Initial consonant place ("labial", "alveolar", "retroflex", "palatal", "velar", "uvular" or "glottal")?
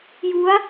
palatal